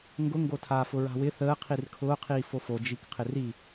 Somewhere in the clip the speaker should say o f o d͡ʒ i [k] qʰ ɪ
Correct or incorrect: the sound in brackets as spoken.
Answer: correct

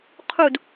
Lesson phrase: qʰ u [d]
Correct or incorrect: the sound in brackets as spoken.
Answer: correct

